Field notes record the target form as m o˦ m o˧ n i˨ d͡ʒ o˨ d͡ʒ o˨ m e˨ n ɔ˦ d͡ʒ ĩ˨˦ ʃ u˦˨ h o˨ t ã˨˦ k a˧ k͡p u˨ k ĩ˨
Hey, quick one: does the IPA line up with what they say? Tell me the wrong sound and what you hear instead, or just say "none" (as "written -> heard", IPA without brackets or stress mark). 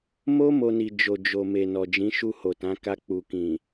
ɔ˦ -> ɔ˨